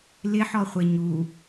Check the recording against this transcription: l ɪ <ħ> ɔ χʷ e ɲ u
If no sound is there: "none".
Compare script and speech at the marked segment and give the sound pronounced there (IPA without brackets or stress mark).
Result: ħ